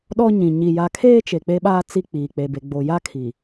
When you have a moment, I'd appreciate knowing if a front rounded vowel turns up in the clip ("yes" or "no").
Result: no